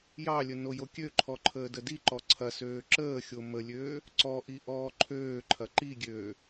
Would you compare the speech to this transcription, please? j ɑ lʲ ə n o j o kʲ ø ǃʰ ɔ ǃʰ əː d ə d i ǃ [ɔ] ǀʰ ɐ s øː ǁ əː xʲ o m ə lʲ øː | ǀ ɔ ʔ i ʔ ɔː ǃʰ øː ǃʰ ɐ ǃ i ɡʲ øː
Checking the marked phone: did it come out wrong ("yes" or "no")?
no